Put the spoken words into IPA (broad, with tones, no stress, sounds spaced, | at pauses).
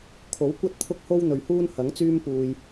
kʰ o˨˥ w kʷ ɐ˥ t̚ t̪ʰ ʊ˥ k̚ h o˥ w n̪ ɵ˨ ɥ h uː˥ n h ɐ˨˥ ŋ t͡s yː˥ m p uː˧ j